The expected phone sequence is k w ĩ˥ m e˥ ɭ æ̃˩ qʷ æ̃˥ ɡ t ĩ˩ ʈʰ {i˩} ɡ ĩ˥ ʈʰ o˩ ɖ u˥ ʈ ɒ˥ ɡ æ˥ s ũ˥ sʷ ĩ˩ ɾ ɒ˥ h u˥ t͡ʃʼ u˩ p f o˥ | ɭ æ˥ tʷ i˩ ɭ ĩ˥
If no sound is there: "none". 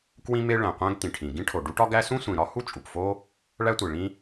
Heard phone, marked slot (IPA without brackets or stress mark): ĩ˩